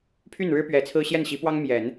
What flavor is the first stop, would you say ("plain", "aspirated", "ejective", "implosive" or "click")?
aspirated